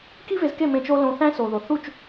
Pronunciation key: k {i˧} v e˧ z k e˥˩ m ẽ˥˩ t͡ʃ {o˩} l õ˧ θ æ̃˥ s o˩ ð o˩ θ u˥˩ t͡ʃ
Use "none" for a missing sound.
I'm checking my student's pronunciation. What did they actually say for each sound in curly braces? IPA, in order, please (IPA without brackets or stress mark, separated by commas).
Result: i˥, o˥